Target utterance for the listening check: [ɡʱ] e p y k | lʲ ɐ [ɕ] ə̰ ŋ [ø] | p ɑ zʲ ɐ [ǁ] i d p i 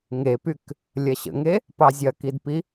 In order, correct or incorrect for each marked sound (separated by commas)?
incorrect, correct, incorrect, incorrect